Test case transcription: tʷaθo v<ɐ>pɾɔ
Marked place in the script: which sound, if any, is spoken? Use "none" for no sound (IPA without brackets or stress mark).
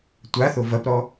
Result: ɐ